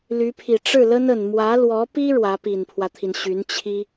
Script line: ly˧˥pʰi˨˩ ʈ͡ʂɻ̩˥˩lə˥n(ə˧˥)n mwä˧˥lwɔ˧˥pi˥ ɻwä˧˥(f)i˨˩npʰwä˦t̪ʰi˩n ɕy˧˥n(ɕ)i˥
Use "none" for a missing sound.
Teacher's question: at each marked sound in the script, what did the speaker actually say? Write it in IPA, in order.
ə˨˩, p, t͡ɕʰ

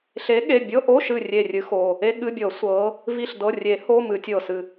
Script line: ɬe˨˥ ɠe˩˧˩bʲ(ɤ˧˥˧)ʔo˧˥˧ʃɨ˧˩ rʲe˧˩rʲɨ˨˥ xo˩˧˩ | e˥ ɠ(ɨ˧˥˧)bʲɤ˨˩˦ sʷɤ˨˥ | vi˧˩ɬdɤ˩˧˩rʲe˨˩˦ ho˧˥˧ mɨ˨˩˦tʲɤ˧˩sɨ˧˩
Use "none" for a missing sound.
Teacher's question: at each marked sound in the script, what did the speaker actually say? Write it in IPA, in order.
ɤ˧˥˧, ɨ˧˥˧

